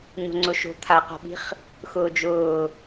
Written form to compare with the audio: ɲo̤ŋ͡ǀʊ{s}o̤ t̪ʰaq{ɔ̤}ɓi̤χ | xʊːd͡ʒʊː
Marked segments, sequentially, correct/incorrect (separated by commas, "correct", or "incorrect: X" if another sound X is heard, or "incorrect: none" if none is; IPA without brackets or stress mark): incorrect: ʃ, correct